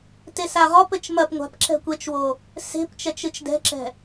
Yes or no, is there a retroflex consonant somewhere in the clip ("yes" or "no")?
no